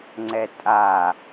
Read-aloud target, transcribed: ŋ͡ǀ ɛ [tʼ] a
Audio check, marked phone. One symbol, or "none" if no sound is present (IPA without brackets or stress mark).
tʼ